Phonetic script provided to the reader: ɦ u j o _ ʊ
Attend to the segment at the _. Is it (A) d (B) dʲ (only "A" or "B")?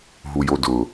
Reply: A